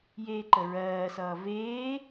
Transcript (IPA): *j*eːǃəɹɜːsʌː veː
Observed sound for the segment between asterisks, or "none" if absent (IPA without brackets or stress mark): j